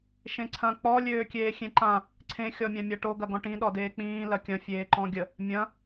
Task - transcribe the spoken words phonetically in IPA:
ʃ ẽ ǀʰ ɐ̃ k͡p ɔ lʲ øː kʲ eː xʲ ẽ ǃ ã | ǀʰ ẽ xʲ ɔ mʲ ã mʲ a ʈ o ɡ ɐ ɡ ɔ̃ ʈ ĩ ɗ ɔ d eː k͡p ĩː l ɐ kʲ ɐ̃ fʲ eː ǃ ɔ̃ ɡʲ ə | mʲ ɐ̃

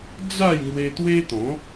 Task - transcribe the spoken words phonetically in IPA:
d͡z a˥˧ j ŋ w e˧ t̪ w e˦ t̪ ɔ̃˨˦

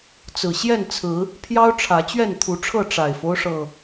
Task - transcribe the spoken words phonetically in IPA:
t͡s ɹ̩˨˩ ɕ j ɛ˥˨ n t͡sʰ ɹ̩˨˦ | pʰ j ɑ˦ ʊ̯ ʈ͡ʂʰ ä˨˦ t͡ɕ ɥ ɛ˥˨ n t̪ʰ u˨˦ ʈ͡ʂʰ ɤ˥˨ ʈ͡ʂ a˨˩ ɪ̯ f o˦ ʊ̯ ʂ ɤ˨˩

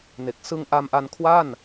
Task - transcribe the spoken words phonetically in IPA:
n e˨˩ k̚ s ɯ˧ ŋ ʔ a˧ m ʔ a˧ n kʰ w a˥˩ n

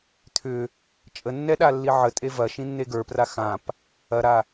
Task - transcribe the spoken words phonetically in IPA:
t̪ʰ ʏ | t͡ʃʼ ə nː ɛ ɗ a lː i ʕ ə tʼ e v ɐ ʃ ĩ nː e ɡ ə˞ p r a x ã p | ɐ ɾ a

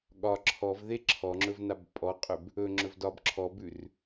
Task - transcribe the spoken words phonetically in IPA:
ɠ ɒ ǁʰ ɔ v ð e ǁʰ ɔ ŋ͡ǁ ɵ v n a b pʼ ɔ qʼ ʏ b | ɵ ŋ͡ǁ ɵ v d ɒ b ǁʰ ɔ b ʉ r

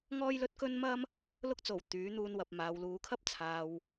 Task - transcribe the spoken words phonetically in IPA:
ŋ ɔː˥ j l ɵ˥ t̚ k ɵ˥ n m ɐ˥ m | l ʊ˧ k̚ t͡s o˨˩ w t̪ yː˨˥ n̪ uː˧ n w ɐ˨ p̚ m aː˨ w l uː˨˧ kʰ ɐ˥ p̚ t͡sʰ aː˨ w

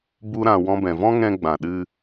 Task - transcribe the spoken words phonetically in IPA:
b u˦ ɾ ã˧ w ɔ̃˦ b ɛ̃˧ v ɔ̃˦ ŋ ɛ̃˧ ɡ͡b ã˨ ɗ ɨ˧

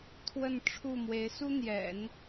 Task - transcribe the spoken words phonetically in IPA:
t̪ʰ w ə˥˧ n ʈ͡ʂʰ u˥˩ m w e˧˥ ɪ̯ s u˥ n̪ j ɛ̰˨˩˦ n

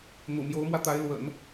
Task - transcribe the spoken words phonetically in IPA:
n̪ ṵ˨˩ m j o˧˥ ʊ̯ m w ä˧ t̪ a˧˥ ɪ̯ l w ə̰˨˩˦ n

